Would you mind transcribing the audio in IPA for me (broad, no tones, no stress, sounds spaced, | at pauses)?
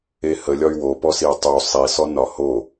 e h ə lʲ ɒ y̯ w o p ɔ s i u̯ tˤ u sˤ i s ɔ n ɒ h o